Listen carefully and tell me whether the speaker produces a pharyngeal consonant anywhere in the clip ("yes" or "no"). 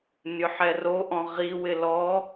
yes